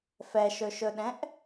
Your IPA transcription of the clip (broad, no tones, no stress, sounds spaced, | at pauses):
f ɛ ʃ ɵ ʃ ɵ ɗ ɛ̃ ʔ